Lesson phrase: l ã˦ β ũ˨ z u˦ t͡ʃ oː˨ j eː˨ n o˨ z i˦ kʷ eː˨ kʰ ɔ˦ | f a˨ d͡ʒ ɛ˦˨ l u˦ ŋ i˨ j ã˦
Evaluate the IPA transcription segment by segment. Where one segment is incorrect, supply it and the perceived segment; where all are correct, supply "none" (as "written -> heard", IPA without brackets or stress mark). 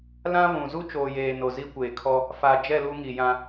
none